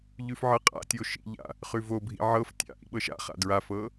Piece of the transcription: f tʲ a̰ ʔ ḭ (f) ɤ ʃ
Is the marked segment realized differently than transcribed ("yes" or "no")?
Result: yes